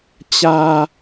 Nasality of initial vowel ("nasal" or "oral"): oral